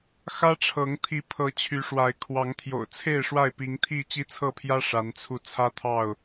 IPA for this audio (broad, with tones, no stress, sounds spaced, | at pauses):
x ä˦ ʈ͡ʂʰ ɤ˨˦ ŋ t̪ʰ i˨˦ pʰ ɤ˨˦ t͡ɕʰ y˨˦ ʂ w a˨˦ ɪ̯ kʰ w ɑ˨˦ ŋ t̪ʰ j o̰˨˩ ʊ̯ t͡sʰ e˥˨ ɪ̯ ʂ w a˥˨ ɪ̯ p i˨˦ ŋ t̪ʰ i˥˨ t͡ɕ i˦ t͡sʰ ɤ˥˨ pʰ j ä˦ ʂ a˨˦ n t͡sʰ u˧ t͡sʰ ä˦ t̪ʰ ɑ˥˨ ʊ̯